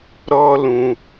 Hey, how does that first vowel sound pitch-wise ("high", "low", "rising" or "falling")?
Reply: high